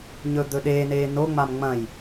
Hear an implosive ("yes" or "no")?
yes